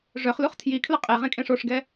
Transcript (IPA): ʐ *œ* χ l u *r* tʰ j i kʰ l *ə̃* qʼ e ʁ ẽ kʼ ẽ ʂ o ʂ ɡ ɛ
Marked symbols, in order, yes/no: yes, no, no

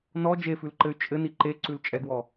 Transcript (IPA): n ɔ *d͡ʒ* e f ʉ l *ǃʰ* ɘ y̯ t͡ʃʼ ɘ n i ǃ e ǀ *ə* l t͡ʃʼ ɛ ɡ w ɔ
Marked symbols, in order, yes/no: yes, no, no

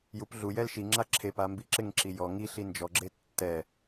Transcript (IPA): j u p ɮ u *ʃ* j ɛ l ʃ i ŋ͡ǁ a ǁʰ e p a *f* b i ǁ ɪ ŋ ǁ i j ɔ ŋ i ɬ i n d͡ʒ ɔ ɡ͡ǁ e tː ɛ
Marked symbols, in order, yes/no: no, no

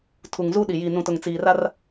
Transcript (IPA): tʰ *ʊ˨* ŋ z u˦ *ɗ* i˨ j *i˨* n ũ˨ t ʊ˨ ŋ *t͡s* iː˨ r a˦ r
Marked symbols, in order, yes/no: no, yes, yes, yes

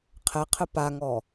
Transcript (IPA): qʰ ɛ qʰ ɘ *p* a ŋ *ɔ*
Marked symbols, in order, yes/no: yes, yes

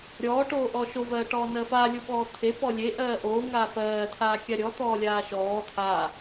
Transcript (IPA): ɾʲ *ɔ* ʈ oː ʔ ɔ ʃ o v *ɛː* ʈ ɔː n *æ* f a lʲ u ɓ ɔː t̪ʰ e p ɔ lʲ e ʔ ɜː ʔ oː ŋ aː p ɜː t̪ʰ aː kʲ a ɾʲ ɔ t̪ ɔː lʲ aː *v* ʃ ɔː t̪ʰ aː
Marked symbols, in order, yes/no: no, no, no, no

